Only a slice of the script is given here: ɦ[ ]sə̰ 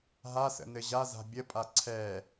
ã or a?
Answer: a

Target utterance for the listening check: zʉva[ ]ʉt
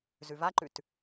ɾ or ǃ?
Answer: ǃ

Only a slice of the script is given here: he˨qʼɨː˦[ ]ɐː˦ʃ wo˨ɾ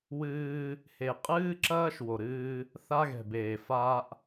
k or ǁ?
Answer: ǁ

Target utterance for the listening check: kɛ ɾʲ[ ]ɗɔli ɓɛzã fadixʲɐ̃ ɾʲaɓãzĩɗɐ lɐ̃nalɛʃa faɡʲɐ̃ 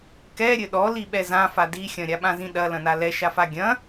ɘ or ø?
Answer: ɘ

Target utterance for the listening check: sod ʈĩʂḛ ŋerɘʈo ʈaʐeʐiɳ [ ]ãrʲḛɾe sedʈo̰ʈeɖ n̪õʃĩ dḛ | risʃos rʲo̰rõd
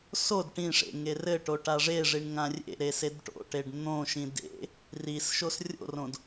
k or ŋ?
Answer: ŋ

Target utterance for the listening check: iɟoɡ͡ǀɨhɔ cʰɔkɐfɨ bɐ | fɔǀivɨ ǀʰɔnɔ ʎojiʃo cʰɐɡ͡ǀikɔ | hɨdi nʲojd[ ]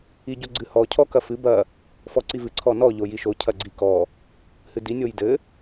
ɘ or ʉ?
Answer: ɘ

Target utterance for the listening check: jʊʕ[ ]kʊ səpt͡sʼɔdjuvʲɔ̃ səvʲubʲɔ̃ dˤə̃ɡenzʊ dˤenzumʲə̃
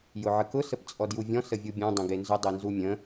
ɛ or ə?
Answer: ə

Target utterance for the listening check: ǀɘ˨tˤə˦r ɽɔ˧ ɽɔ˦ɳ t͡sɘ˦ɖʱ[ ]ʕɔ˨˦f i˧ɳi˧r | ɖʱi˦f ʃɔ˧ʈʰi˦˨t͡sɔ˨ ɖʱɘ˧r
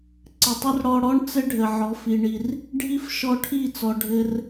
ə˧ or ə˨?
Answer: ə˨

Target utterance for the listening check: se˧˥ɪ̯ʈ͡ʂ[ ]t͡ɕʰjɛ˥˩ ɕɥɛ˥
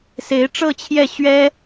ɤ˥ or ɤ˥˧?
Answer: ɤ˥˧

